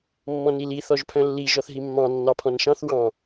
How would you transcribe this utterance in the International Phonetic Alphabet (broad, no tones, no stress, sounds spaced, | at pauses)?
mː ɔ̃ n i l i θ ɔ ʒ pʰ œ̃ lː i ʒ ɔ θ ɦ i mː ɑ̃ nː ɑ pʰ ɔ̃ n ʃ ɑ̃ θ w ɑ̃